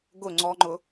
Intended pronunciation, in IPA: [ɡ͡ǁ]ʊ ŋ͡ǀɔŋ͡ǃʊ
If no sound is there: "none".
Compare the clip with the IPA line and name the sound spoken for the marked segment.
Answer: ɡ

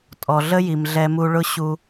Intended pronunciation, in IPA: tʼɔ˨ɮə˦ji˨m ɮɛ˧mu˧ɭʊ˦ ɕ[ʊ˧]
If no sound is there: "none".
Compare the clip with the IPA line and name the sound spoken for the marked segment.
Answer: u˧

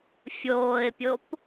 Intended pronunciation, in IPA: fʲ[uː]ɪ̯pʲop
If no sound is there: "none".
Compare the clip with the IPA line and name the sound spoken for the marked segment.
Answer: oː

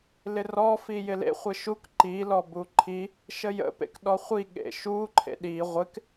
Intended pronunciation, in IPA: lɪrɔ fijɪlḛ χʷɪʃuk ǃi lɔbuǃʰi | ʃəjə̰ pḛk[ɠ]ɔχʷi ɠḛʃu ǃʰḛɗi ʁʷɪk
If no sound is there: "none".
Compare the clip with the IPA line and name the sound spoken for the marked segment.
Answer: ɗ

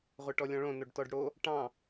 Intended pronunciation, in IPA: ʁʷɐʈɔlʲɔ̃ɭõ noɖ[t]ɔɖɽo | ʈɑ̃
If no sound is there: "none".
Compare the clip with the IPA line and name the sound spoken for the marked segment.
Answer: t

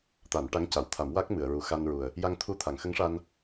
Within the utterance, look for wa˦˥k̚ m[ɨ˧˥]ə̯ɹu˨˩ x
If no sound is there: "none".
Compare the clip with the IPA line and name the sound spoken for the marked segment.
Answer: ɨ˨˩˨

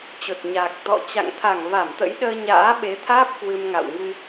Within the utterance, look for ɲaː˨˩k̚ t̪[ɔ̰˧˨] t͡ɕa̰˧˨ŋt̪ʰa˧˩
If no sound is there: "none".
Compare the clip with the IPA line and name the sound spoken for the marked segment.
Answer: ɔ̰˧˨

